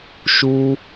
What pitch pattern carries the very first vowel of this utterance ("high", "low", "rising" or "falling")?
high